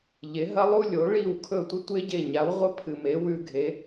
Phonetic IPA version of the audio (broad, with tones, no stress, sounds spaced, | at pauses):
ʎ e˩˥ ɦ ɐ˥ lˠ u˥ lʲ o˩˥ ɭ i˥˩ w kʰ ɵ˥˩ tʷ ɨ˥ tʷ e˥ ɟ e˥˩ ɲ a˩˥ w ʁʷ ɐ˥ pʰ ɨ˩ m e˩˥ w ʉ˧ ɡʱ e˩˥